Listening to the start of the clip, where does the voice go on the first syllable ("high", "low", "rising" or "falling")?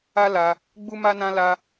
high